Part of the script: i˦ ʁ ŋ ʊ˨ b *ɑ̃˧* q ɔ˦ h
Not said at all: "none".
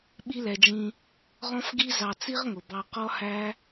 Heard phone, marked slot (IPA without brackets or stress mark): ɑ˧